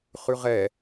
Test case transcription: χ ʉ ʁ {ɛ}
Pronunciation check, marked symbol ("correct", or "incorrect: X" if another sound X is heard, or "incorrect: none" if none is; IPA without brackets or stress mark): correct